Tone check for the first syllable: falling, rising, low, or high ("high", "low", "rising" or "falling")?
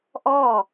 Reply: falling